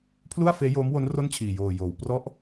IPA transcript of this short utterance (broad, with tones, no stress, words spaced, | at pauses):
pʰlu˥˩a̯feː˦˥joː˦˥mwo˦˥n ro˥˩nt͡ɕʰiː˨˩ joː˨˩ joː˩˦w prɔ˦˥ʔ